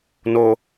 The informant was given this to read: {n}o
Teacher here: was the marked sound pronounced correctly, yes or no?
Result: yes